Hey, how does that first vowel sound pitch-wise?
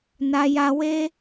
high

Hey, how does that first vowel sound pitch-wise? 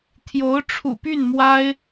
rising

